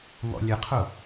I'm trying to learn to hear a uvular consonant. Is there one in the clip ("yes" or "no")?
yes